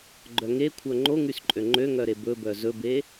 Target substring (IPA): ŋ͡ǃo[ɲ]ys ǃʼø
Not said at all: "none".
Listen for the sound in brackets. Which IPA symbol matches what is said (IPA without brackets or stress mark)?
ŋ